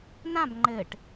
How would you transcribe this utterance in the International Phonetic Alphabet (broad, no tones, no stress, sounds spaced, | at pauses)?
n ã b ŋ͡ǃ ɘ ʈ